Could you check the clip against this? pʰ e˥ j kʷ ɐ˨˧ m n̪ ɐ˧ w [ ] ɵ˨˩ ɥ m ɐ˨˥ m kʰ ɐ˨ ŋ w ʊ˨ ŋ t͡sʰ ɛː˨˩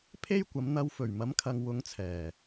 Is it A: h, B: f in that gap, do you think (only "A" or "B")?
B